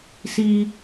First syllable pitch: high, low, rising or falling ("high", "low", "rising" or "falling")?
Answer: low